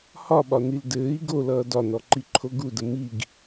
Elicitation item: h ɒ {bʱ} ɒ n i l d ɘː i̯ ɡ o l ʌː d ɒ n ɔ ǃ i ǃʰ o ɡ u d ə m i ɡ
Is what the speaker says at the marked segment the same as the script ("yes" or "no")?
no